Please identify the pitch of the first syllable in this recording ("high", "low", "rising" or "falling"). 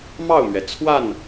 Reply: falling